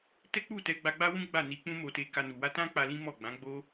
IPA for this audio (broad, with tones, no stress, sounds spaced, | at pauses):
t ɛ˦ k͡p u˦˨ t ɛ˧ ɡ͡b a˧ ɡ͡b a˦ w ũ˦ ɡ͡b a˦˨ n i˧ k͡p ũ˦ m o˧ t e˧ k a˧ n u˨ w a˧ t ã˦ k͡p a˧ l ĩ˦ m ɔ˦˨ ɡ͡b ã˨˦ ɡ͡b o˦